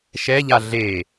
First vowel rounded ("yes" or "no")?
no